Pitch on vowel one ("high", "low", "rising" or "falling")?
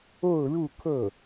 falling